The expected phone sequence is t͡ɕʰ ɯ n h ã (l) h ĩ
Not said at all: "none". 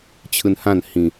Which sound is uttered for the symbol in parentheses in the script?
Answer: n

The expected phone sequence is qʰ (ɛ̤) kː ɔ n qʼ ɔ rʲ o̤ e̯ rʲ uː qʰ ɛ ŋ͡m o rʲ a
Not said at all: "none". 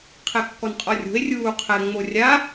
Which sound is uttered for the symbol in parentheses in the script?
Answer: ɛ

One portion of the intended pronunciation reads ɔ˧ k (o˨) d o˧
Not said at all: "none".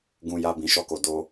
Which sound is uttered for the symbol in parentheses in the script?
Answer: o˨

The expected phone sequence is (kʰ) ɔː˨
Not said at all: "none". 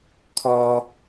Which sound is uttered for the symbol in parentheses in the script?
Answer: kʰ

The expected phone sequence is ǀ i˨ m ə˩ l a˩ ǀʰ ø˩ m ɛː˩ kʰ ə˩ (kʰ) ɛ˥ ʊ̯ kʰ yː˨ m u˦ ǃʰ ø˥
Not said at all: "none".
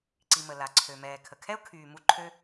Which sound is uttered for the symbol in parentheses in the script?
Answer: kʰ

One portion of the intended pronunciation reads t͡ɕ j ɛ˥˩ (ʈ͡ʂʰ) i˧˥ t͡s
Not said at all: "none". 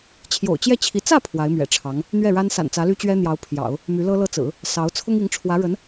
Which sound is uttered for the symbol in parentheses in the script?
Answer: t͡ɕʰ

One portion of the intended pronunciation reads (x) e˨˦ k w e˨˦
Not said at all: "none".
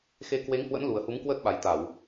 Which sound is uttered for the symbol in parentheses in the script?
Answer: x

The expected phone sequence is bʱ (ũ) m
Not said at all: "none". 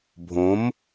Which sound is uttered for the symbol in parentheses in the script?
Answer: õ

